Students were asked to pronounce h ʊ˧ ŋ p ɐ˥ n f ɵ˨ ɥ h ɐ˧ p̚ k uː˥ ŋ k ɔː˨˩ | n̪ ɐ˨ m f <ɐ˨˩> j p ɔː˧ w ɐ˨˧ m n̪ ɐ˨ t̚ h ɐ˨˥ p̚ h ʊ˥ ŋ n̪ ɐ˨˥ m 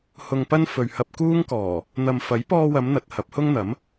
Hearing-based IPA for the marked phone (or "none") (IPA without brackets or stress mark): ɐ˨˥